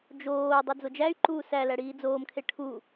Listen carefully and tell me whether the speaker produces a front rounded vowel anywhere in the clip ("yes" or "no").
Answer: yes